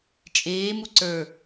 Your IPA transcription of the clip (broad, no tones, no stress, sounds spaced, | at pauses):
t͡ʃʼ eː m u ǀ ə˞